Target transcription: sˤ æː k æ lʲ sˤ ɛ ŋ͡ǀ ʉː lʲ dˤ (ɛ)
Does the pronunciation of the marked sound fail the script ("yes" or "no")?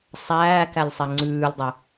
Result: no